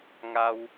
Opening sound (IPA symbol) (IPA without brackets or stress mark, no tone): ŋ